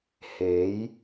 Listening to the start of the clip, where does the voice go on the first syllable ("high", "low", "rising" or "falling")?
rising